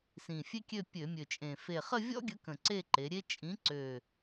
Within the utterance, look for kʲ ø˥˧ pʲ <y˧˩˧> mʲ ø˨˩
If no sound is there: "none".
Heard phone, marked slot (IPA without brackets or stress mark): ø˧˩˧